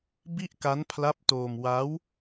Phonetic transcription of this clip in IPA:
b i˥˩ ʔ k a˦˥ n pʰ l a˦˥ p̚ t oː˧ m w a˦˥ w

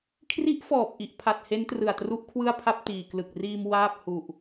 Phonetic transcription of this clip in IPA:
kʰ r i˦˥ ʔ f ɔː˨˩ p̚ ʔ i˨˩ ʔ pʰ a˨˩ t̚ h e˦˥ n t r ɯ˨˩ a̯ t r u˦˥ ʔ kʰ w ɯ˥˩ a̯ pʰ a˥˩ p̚ t iː˨˩ k l ɯ˨˩ k̚ r iː˧ m w aː˥˩ p̚ h u˨˩ ʔ

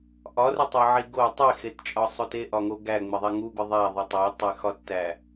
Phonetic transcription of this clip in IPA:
ʔ ɒ r u tˤ e ʕ i ɡ o tˤ i x e t t͡ʃʼ ɒ sˤ o t e ʔ ɒ ŋ o ɡ æ ŋ͡m e ðˤ æ ŋ u b i ðˤ æ ðˤ o tˤ ɒ tˤ e x ɒ tː æ

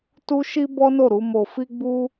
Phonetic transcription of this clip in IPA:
t u˦ ʃ i˦ b ɔ˦ n o˦˨ ɾ u˨˦ m o˧ f i˦ ɡ͡b u˦

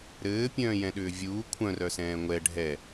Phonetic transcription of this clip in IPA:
ɾ ɘː pʲ œ̃ː j ɛ̃ ɗ ʏː vʲ uː kʷʰ œ̃ r œ s ɛ̃ː ŋʷ ɛ ɖʱ ɛ

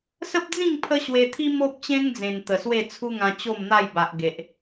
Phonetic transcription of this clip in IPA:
s ə˦ p̚ d͡z ĩ˥˧ ŋ pʰ ə˦ ɕ w e˧ t̪ʰ i˦ m o˦ p̚ t͡ɕ ẽ˦ ŋ d͡z ẽ˨˩ n t̪ ə˨˩ s w e˥˧ t͡sʰ u˦ ŋ ã˧ t͡ɕ o˥˧ m n̪ a˥˧ j b a˨ ʔ ɡ e˨ ʔ

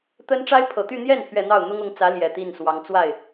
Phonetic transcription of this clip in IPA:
t̪ ə˥ n ʈ͡ʂ a˥ ɪ̯ pʰ ɤ˨˩ t̪ y˥˧ n̪ j ɛ˥˩ n pʰ ɥ ɛ˨˩ n̪ ɑ˥˩ ʊ̯ n̪ ʊ˥ ŋ ʊ˧˥ ŋ t͡s ä˧˥ l j ɛ˨˩ t̪ i˥˩ n s w ɑ˧˥ ŋ t͡s w a˥˩ ɪ̯

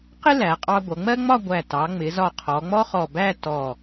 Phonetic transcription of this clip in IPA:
q ɪ˥ l æ˩˧ qʼ ɑ˧ ɡʷ ʌ˩˧ ŋ͡m ɜ˥ ŋ͡m ɒ˥˧ ɡʷ æ˧˩ t ɑ˩˧ ŋ͡m ɪ˩˧ z ɒ˧˩ qʰ ɔ˩˧ ŋ͡m ɔ˥ χ ɔ˧˩ b æ˥˧ t ɔ˧˩

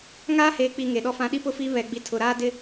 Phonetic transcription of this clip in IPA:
ŋ aː˦ h eː˨ k͡p i˨ ŋ e˨ ɗ ɔ˦ f ã˦ ɗ i˦ p ʊ˦˨ f i˦ β ɛ˨ ɡ͡b i˨ tʰ ʊ˨ ɾ aː˦ d ɪ˦

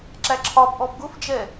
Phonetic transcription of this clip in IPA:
ǁ æ ǁʰ ɒ b ʔ ɔ b ɡ ʊ f d͡ʒ ɛ

